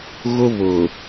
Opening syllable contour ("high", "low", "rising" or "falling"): high